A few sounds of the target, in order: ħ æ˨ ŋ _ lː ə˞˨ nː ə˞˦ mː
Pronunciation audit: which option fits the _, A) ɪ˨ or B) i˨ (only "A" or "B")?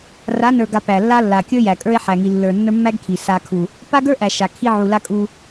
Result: B